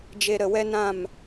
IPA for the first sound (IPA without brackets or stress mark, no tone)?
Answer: d͡ʒ